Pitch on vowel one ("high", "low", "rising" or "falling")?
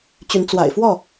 rising